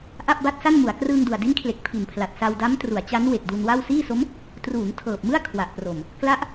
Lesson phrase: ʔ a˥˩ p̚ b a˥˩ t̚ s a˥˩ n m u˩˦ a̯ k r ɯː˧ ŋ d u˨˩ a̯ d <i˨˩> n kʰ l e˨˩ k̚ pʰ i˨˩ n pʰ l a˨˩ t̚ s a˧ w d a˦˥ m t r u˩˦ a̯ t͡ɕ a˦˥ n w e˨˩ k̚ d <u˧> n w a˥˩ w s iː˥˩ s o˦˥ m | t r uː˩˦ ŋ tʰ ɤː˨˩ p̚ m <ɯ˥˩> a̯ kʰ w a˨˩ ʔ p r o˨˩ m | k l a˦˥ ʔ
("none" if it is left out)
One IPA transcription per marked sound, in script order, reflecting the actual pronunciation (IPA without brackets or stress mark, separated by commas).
i˦˥, u˧, ɯ˥˩